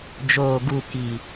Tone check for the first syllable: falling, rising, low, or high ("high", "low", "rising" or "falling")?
low